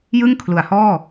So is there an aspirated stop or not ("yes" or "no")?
yes